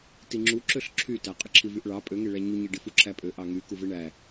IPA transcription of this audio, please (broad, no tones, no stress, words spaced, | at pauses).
tiŋ͡ǁu ǁøɬǁʰytæ qʼɯǁʰivyʔɭɑ pʼøŋe ɭæɲuɲi ɖifuǁʰæpʼø ʔɑŋy kuveɳæ